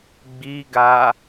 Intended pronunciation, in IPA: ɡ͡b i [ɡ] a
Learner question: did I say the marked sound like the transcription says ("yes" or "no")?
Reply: yes